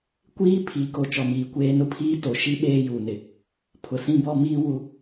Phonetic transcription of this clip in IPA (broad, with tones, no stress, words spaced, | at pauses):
kʷiː˦ pʰi˨˦ko˨ t͡ʃɔ˨miː˨kʷeː˦ nʊ˦pʰiː˦to˨ ʃi˦ ɓeː˦juː˨nɪ˨ | pʰʊ˨sĩ˦bɔ˦miː˦ wu˦